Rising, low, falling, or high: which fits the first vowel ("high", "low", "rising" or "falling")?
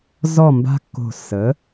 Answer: falling